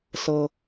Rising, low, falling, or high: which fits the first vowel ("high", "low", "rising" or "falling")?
high